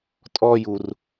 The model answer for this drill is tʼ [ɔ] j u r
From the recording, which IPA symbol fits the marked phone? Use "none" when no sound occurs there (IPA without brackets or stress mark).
ɔ